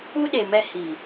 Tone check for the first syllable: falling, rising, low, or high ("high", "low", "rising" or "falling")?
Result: high